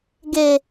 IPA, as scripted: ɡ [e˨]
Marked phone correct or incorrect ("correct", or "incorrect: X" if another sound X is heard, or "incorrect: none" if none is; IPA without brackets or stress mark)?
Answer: correct